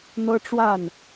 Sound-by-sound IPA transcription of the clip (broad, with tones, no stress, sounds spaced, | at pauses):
n̪ ɤ˥ ʈ͡ʂ w a˥˩ n